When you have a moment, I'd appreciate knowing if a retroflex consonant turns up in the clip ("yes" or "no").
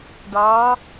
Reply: yes